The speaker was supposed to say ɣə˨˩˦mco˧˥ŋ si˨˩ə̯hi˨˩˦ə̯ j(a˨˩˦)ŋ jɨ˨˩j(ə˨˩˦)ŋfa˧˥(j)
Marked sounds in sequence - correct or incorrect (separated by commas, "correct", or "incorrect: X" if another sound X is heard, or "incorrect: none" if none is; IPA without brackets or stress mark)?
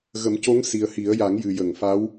correct, incorrect: ə˨˩˨, incorrect: w